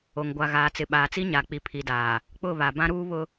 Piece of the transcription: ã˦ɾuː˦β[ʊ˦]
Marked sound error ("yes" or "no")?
no